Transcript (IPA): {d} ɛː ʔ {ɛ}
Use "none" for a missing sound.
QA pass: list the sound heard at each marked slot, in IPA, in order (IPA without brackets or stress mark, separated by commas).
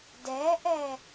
d, ɛ